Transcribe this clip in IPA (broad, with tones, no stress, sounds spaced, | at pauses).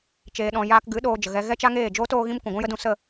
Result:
t͡ʃ eː˨ ɗ ɔ̃˨ j aː˧ k ɡ ɨ˨˦ ɗ oː˧ d͡ʒ ə˨ ɣ ɛ˧ ɣ ɛ˦ t͡ʃ a˦ ŋ eː˦˨ d͡ʒ oː˦ t oː˦ ɣ ĩ˦ m kʷ ũ˨ ɡʷ ũ˦ j ə˦ d ũ˧ s ə˦˨